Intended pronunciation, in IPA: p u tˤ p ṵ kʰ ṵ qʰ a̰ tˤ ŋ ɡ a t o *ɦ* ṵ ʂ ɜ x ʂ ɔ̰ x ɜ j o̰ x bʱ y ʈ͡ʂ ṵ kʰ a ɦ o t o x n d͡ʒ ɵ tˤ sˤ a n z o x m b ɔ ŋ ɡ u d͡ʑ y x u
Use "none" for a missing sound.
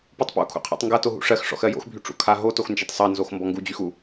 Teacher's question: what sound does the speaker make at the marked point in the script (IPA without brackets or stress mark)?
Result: ɦ